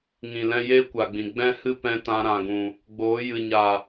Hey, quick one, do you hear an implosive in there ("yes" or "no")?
no